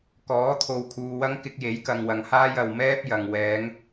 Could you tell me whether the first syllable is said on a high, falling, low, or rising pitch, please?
rising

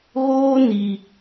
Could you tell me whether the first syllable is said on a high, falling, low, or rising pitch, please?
high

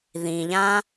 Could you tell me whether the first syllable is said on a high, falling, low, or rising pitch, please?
low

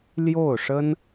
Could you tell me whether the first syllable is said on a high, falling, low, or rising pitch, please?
falling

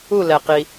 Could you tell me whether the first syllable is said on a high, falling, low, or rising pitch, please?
falling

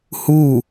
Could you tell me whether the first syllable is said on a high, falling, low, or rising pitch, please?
falling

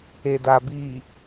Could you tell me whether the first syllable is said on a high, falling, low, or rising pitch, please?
low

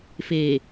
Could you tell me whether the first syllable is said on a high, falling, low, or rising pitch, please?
low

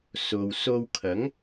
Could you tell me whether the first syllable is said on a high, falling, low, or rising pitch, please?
low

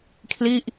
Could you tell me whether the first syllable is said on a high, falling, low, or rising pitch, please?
falling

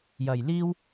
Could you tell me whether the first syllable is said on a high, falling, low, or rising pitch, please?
low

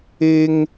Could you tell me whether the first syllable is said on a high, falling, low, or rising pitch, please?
high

